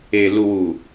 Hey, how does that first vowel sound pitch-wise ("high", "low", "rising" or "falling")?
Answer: low